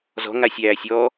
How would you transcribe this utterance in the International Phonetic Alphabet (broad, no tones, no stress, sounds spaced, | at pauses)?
z ɔ̤ ŋ a sʲ æː sʲ ɔ